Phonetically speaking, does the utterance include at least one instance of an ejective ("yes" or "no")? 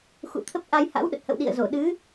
no